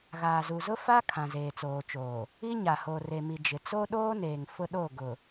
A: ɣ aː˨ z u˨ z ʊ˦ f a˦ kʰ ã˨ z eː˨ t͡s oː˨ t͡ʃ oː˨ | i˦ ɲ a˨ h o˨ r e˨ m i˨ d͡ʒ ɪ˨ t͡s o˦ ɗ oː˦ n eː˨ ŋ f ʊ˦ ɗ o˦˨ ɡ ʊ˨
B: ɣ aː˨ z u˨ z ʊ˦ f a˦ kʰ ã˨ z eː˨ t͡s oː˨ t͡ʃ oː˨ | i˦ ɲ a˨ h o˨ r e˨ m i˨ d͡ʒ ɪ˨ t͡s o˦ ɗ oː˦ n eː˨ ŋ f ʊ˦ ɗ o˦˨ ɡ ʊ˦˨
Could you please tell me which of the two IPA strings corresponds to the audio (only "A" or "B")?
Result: A